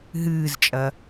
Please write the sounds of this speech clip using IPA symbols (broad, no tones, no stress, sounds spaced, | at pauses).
ɦ ɨː z t͡ʃʼ ɐ